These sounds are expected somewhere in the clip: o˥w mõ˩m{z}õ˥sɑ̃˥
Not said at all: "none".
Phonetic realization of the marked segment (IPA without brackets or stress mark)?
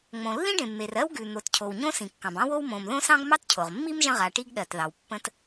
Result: ð